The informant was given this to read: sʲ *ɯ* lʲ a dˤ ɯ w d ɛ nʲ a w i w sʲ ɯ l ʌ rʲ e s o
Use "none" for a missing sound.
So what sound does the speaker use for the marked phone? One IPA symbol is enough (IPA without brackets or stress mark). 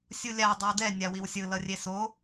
u